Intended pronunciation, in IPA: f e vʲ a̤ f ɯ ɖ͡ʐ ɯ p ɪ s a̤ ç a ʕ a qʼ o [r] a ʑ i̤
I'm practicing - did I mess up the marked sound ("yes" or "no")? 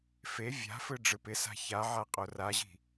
no